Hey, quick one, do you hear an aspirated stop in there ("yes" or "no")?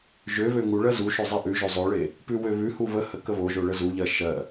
no